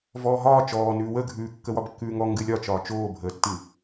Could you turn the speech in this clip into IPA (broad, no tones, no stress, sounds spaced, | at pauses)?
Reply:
v ɔː ɦ ɒː t͡ʃ ɔː n ʉː w ə ɡʱ ʉː kː ə w ɒ b kː ʉː ŋ ɔ ŋ ɡ ɨ lʲ ɒ t͡ʃ ɒː t͡ʃ oː bʱ əː tː ɨ